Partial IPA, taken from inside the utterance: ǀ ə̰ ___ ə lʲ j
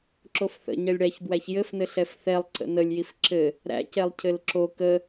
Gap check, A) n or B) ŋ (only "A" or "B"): A